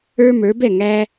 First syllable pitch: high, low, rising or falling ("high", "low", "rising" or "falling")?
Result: high